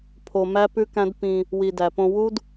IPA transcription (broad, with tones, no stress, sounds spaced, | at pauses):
pʰ o˧ m æ˦ p ʉ˦ k æ̃˦ d p ĩ˧ | w i˨ d æ˨ p õ˧ w u˦ d